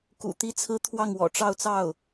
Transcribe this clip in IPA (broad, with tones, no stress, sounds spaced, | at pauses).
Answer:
k ṵ˨˩ t̪ i˧˥ t͡sʰ ɹ̩˧˥ t̪ʰ w ɑ˥˩ ŋ w ɔ̰˨˩ ʈ͡ʂ ɑ˥˧ ʊ̯ t͡s ɑ˥˩ ʊ̯